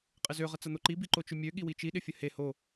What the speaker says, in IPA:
qʼ ɪ z ø ʁ ə t͡s ɐ n̪ o ǃ i b i ǃ o t͡ʃ ʏ mʲ ø ɠ i w i t͡ʃ i ɗ ɪ fʲ ə h e h o

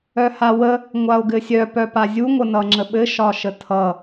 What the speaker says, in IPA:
œ h a w ə | ŋʷ a o̯ ɡ ɘ sʲ œ p œ p a zʲ u ŋʷ ə n ʌ ŋ͡ǁ ə ɓ ɘ ʃ ɒ ʃ ə tʰ ʌ

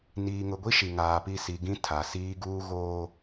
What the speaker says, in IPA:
n iː˨ ŋ ʊ˨ ɡʷ i˦ ʃ i˨ ŋ aː˨ p i˦˨ s i˨ ɡ ĩ˦ tʰ a˨ s iː˦ ɡ uː˦ ɣ oː˦

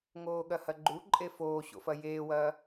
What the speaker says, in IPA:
ŋ oː ɠ ɐ h ɐ ɡ͡ǃ u ǃʼ e f oː ɕ o̰ f ɐ j eː w ɐː

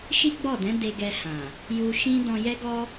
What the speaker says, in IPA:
ʃ i˦ ɡ͡b ɔ˦˨ d ɛ̃˨˦ d e˧ ɡ ɛ˧ h ã˨ | j u˧ ʃ ĩ˦ d ɔ̃˧ j ɛ˦ ɡ ɔ˦

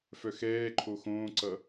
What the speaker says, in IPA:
f œ x ɛː ǃʰ o x õː ǀ ʌ

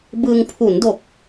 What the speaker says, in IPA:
b ɯ˧ ŋ pʰ u˩˦ n d o˨˩ k̚

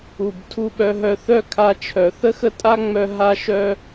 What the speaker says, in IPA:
u˨ b tʰ u˧ ɓ œ˧ ɦ œ˧ θ œ˦ kʰ a˧ t͡ʃʰ œ˨ θ ə˦ x ə˦ tʼ a˦ ŋ͡m œ˧ ɦ a˧ ʃ œ˧

